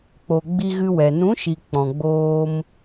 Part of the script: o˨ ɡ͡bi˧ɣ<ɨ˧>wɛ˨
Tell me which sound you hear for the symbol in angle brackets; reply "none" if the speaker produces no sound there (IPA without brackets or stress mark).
ɨ˧